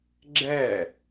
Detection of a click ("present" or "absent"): present